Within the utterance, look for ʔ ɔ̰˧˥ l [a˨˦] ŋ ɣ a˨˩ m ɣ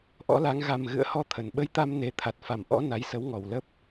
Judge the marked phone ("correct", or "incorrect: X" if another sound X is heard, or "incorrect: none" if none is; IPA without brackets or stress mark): correct